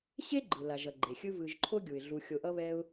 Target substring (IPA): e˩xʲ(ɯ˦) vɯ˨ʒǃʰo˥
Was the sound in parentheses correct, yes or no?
yes